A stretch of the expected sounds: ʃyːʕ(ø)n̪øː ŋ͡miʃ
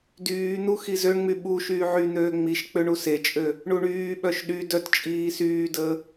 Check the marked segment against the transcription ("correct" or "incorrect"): incorrect